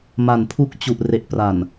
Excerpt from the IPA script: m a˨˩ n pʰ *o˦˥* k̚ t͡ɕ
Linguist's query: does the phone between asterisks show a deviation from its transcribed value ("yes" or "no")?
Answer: yes